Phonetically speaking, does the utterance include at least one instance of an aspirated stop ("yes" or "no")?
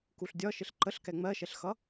no